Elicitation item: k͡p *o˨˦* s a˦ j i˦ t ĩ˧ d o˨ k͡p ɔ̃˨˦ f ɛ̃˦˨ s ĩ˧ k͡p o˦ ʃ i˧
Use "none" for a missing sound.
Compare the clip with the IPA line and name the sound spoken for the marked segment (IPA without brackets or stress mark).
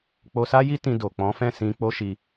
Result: o˧